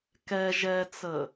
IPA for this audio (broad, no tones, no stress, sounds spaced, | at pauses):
k ɛ ʒ ɛ t͡s ə